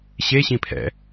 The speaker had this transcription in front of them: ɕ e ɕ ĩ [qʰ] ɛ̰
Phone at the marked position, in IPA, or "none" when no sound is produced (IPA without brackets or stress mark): pʰ